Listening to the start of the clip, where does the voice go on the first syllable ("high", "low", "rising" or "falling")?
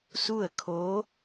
falling